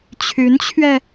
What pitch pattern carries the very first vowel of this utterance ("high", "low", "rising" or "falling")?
rising